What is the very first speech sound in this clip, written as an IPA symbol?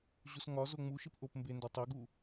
ʑ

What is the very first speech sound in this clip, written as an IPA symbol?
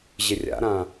ʑ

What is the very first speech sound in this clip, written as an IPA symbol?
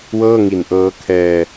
w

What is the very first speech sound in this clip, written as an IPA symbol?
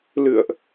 l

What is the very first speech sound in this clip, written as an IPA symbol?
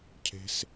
cʰ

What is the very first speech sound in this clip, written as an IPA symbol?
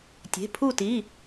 tʲ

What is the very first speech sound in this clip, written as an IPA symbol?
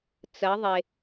t͡s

